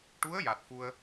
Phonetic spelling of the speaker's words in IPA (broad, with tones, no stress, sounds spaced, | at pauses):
ʈ u˧˥ ə̯ j a˨˩ t̚ f u˧ ə̯